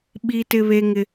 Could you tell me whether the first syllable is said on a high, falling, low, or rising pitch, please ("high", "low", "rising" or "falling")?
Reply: high